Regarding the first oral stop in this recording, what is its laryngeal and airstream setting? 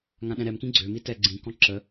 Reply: implosive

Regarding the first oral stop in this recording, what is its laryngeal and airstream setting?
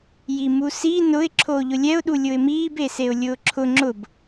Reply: click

